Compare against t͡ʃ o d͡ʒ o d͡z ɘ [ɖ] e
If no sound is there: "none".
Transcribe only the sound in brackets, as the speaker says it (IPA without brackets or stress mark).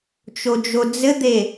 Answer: d̪